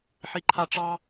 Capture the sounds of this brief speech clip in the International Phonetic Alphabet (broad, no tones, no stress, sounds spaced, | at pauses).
ħ i ǃʰ a ʈ͡ʂ ɑ